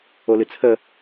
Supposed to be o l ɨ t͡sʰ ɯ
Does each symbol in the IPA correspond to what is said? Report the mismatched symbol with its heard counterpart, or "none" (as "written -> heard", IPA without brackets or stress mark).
ɯ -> ə